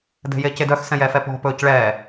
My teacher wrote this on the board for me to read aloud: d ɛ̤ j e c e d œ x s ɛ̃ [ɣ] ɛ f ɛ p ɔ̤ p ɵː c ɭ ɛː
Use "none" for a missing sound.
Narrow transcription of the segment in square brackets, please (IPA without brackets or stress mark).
j